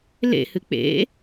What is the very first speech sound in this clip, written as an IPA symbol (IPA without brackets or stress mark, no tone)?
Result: l